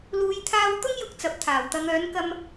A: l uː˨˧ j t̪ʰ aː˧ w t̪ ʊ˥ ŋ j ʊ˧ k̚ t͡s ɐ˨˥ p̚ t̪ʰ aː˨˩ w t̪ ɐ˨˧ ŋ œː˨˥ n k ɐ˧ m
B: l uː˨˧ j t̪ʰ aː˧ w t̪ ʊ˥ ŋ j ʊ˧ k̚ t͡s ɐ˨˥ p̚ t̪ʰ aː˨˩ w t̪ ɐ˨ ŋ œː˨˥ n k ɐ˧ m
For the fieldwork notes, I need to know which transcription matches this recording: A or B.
A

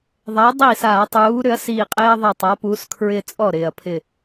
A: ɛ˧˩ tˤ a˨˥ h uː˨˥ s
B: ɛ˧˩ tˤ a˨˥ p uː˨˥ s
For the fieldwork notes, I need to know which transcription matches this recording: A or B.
B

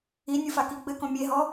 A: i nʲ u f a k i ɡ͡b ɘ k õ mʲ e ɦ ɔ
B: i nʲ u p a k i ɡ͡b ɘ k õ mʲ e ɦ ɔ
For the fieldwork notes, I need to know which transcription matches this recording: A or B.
A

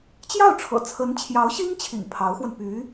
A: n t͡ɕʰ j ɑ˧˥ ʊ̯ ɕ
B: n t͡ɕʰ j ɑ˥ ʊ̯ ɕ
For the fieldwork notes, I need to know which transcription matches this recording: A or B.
A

